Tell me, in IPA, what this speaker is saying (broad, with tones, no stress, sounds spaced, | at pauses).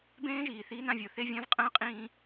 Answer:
b ẽː˦ ʒ iː˨ θ iː˦ n ã˦ vʲ o˨ θ e˦ vʲ ã˦ v qʼ ə̃ː˦ qʼ ĩː˦